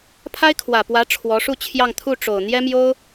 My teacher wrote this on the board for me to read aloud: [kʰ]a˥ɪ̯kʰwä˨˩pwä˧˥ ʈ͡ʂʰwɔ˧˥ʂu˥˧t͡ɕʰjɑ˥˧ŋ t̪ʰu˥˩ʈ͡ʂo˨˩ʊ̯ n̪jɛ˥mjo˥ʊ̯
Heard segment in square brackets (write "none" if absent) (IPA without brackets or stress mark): pʰ